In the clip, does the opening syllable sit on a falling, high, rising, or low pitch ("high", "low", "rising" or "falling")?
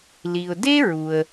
low